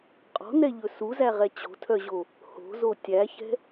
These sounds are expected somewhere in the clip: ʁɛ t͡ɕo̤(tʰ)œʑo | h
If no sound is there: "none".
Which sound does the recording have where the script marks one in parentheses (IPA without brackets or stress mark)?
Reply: tʰ